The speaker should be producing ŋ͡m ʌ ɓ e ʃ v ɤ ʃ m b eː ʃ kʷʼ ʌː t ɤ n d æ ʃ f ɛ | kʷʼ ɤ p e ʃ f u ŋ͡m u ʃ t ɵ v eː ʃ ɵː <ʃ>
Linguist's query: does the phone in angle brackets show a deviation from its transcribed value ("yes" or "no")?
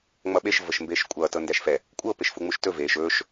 no